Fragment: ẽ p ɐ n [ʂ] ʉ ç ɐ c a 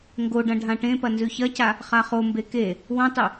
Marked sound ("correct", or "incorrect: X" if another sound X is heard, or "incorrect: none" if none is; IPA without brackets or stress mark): incorrect: z